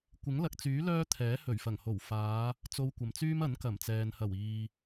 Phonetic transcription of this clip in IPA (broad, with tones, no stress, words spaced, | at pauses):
kʷɪ˨˥ŋlɐ˨k̚t͡syː˨˥ lœː˥t̪ʰɛː˨˥hɵ˨˩ɥfɐ˨˩ŋ ho˨˩wfaː˨˧ | t͡so˧wkʷɐ˨mt͡syː˥mɐ˨˥n kɐ˨˩mt͡sɛː˨n hɐ˨˩w iː˨